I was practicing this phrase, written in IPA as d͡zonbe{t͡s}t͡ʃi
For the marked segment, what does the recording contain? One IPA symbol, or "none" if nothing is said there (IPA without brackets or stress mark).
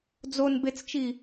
t͡s